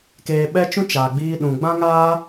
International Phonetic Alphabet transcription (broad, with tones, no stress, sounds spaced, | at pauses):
k eː˧ ɓ ɛ˦ t͡ʃ ũ˦ t͡ʃ aː˨ ɡ͡b iː˧ ɗ ũ˨ ɡ͡b ã˦ ŋ aː˦